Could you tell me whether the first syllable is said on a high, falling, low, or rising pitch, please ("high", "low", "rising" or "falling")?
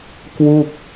falling